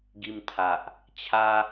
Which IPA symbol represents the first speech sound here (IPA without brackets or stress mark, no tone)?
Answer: ɡ